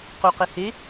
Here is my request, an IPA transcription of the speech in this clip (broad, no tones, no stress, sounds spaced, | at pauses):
q u q e h e